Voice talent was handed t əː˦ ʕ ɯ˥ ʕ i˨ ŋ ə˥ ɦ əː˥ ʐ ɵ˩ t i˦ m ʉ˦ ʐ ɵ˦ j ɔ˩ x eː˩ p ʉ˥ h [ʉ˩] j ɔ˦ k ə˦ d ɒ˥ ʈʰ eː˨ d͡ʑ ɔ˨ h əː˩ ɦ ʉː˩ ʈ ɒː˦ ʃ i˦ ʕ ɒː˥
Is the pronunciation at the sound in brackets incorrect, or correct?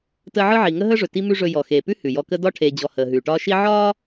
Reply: correct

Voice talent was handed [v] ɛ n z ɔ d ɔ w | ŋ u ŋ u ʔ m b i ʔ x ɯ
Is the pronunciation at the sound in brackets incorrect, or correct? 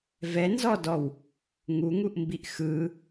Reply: correct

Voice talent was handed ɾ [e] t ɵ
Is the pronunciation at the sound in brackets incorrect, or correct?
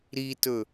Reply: incorrect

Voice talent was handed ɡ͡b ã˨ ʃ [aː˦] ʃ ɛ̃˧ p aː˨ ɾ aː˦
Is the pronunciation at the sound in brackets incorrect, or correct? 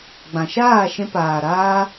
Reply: incorrect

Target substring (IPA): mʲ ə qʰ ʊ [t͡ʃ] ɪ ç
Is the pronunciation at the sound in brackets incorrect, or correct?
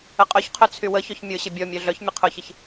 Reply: incorrect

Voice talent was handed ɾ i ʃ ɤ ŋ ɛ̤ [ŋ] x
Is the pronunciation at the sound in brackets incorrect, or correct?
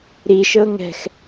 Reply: incorrect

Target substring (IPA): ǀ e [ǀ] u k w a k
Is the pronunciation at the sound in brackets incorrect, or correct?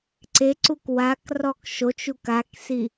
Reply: correct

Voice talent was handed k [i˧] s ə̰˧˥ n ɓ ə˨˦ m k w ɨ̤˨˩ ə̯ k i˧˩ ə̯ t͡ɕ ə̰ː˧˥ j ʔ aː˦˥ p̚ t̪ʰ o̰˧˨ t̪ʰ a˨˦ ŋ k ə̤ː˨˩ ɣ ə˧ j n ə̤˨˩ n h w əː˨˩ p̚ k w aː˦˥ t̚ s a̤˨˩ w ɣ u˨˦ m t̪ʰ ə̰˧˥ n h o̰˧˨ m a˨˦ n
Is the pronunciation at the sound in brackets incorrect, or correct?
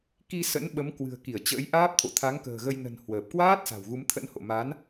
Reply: correct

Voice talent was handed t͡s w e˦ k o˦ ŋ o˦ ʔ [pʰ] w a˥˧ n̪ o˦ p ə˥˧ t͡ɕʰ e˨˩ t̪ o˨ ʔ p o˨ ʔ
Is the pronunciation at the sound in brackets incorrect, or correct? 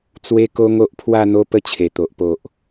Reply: correct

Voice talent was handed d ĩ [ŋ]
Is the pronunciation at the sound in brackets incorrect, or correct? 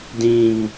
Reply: correct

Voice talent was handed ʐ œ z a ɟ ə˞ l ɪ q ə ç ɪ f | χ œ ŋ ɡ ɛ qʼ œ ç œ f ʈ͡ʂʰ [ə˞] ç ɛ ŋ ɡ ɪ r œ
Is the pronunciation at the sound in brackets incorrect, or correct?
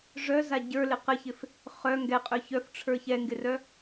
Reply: correct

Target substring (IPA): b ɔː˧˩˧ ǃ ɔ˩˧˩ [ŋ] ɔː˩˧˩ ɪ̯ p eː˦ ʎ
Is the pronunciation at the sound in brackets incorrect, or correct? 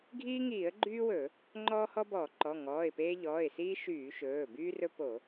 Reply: correct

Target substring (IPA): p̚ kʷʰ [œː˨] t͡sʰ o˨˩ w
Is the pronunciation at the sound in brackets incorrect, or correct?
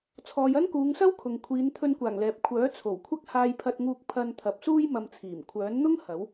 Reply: incorrect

